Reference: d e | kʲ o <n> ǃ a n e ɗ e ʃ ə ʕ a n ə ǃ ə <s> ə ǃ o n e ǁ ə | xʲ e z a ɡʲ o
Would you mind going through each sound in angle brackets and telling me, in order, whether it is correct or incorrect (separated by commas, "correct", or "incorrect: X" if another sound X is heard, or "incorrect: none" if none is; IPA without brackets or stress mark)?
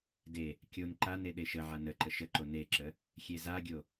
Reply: correct, incorrect: ʃ